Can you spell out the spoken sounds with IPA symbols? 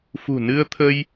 f ṳ˨˩ n ɨ˧ ə̯ t̪ʰ ə˧ j

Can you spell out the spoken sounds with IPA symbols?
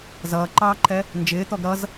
z ʌː ǃ ɑː ǃʰ ɛ | n d͡ʒ ɪː t̪ ɔ ɡ ɾ ʌ z

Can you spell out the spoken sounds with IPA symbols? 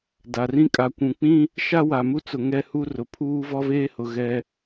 d a˨ r ĩ˦ kʼ a˨ kʷ ũ˨ k͡p ĩ˦ | ʃ a˦ w a˨ m u˦ t͡s ʊ˨ ŋ ɛ˦ h u˦ r ʊ˨ pʰ uː˦ v ɔ˦ v eː˦ h ʊ˨ ɣ ɛ˦

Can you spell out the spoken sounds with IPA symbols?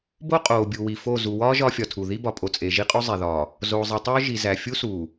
b o˦ qʼ oː˨ bʲ u˨ w i˨ f o˦˨ z u˨ w ɒː˦ ʒ ɒː˦ fʲ ɒ˨ tʰ u˨ ð i˦ b ɒ˨ pʼ o˨ t͡sʼ e˨ ʒ i˦ qʼ o˦ zˤ e˨ ð ɒː˨ | z oː˨ zˤ i˨ tˤ oː˦ ʒ i˨ z æ˨ fʲ u˦ s uː˨

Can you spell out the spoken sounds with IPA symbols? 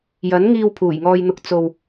j ɐ˨˥ n ŋ iː˧ w pʰ uː˨˩ j ŋ ɔː˧ j n̪ ʊ˧ k̚ t͡s o˨ w

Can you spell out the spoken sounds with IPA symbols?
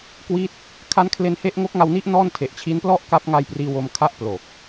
k w i˥˩ t̚ | kʰ a˦˥ n kʰ l e˧ n h e˦˥ ʔ ŋ o˦˥ k̚ ŋ a˧ w n i˦˥ ʔ n ɔː˥˩ n tʰ e˨˩ ʔ t͡ɕʰ i˦˥ n p l ɔ˥˩ ʔ k a˦˥ p̚ ŋ a˧ j p r iː˧ w o˧ m kʰ a˥˩ ʔ p l o˨˩ k̚

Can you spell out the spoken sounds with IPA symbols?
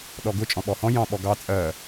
ɗ ɔ ɡ ʊ t͡ʃʼ ɔ̃ ɓ ɔ h ɔ̃ j ɑ̃ ɓ ɔ ɡ ɑ t͡sʼ ɜ

